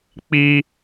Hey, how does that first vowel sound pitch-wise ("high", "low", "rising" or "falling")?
high